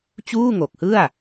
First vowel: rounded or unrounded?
rounded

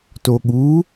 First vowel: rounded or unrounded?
rounded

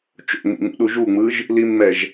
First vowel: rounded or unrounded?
rounded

